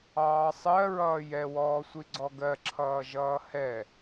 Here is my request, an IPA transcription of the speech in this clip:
ɑː sˤ ɜ ɹ ʌː j ɛ w ɔː sʷ i ɡ͡ǀ ɔ ɡ ɜ ǁʰ ʌː ʒ ʌː h ɛ

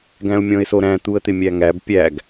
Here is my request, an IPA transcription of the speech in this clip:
ɡ æ̃ ʊ̯ mʲ ɔ̃ ɪ̯ s o ɾ æ̃ t̪ u ə̯ t̪ ɪ mʲ æ ŋ æ b pʲ æ ɡ

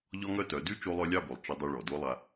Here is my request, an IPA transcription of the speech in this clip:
ʎ ɔ˦ ŋ œ˦ t œ˨˦ d y˦ t͡ʃ o˧ lˠ œ˧ lʲ ɑ˦˨ b o˨ lˠ t͡ʃ ə˧ dˤ y˧ ɭ ɔ˨ d o˦ lˠ a˧

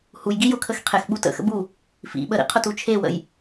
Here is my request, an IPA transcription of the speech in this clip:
h u j ɡ i j ʊ kʰ ə x qʰ e x ɓ u t ə̰ x ə̰ b u | f ḭ ɓ ə ɾ ḭ qʰ ʊ t u t͡ʃʰ e w ə̰ j

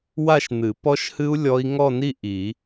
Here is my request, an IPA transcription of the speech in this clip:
w a˥˧ ʃ n̪ ɨ˨˩˦ p ɔ˦˥ ʃ h ɨ˦˥ u̯ lʲ ɔ˦˥ i̯ ŋ ɔ˥˧ n i˥˧ ʔ i˨˩˦

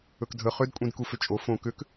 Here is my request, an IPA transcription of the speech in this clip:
ɵ k dʱ ə χ ʏ d kʷʼ ĩ d k u f ʏ t͡ʃʼ o f õ k ʏ k

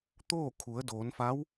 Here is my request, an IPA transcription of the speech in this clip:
t̪ oː˥˨ kʰ u˩˧ ə̯ d oː˩˧ n f a˧˥ w

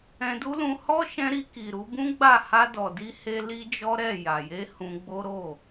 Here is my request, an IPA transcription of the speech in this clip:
ɛ̃˧ d u˦ l ũ˧ h ɔ˦ ʃ ɛ̃˧ ɾ i˧ k i˨ ɾ u˨˦ b ũ˦ ɡ͡b a˦˨ h a˧ d ɔ˨ d i˧ h e˧ l i˦ d͡ʒ ɔ˦ ɾ ɛ˦˨ j a˨ j e˧ h ũ˧ ɡ͡b o˦ ɾ o˦˨

